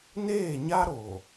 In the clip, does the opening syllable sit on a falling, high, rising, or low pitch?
falling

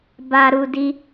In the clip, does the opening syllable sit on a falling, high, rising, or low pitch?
low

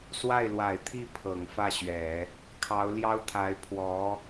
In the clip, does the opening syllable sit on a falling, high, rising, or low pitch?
falling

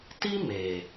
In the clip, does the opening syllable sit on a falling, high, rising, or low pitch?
high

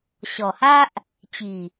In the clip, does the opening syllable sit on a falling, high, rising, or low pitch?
low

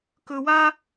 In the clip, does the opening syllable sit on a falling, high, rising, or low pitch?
high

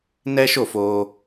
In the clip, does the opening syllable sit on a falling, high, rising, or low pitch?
high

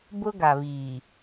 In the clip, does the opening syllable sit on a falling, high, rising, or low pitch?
high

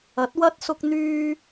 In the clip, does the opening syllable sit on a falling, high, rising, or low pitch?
rising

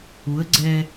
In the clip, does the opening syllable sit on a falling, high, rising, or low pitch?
rising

